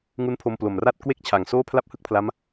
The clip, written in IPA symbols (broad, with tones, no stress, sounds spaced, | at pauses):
ŋ u˦˥ n pʰ o˧ m p l o˨˩ m r a˥˩ t̚ k w e˥˩ k̚ t͡ɕʰ a˨˩ ŋ s oː˥˩ pʰ l a˥˩ p̚ h ɯ˥˩ k̚ pʰ l a˦˥ m